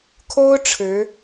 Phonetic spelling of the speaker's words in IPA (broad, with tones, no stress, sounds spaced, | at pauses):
kʰ o˥ ʊ̯ ʈ͡ʂʰ ɻ̩˧˥